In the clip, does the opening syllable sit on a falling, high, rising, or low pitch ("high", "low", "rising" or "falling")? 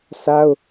high